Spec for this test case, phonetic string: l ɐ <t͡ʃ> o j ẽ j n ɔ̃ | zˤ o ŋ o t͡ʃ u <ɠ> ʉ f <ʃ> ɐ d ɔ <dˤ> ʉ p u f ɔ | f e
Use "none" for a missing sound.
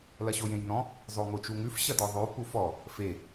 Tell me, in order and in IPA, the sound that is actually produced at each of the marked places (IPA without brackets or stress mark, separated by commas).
ɕ, ŋ, ɕ, ðˤ